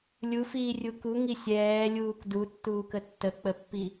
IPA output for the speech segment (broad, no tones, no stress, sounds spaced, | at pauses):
lʲ u f iː rʲ u k u ŋ i sʲ ɛː lʲ uː k d u tː uː k ə tː ə k͡p ə pː i